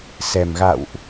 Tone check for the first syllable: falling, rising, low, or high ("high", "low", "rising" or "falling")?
low